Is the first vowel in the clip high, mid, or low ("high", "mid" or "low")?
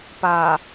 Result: low